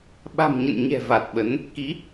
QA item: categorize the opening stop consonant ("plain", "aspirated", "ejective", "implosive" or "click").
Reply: implosive